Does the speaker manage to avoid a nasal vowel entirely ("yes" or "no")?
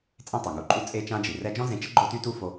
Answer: no